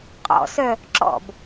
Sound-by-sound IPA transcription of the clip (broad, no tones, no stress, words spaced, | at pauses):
qʼɔ̰sœ | ǁɔ̰b